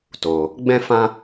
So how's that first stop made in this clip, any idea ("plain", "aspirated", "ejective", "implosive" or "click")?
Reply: plain